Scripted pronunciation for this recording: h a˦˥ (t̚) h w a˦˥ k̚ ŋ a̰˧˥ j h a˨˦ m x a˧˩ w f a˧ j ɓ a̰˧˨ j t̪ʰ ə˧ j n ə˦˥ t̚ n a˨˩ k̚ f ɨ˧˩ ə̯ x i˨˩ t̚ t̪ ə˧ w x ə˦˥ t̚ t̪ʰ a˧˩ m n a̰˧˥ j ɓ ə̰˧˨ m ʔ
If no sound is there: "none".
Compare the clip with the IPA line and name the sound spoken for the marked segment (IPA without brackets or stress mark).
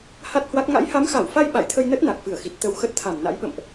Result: t̚